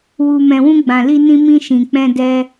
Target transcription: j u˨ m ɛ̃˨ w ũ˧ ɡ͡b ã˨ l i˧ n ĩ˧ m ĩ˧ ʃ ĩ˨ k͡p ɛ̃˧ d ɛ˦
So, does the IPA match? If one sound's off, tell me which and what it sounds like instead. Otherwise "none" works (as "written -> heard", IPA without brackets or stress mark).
j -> w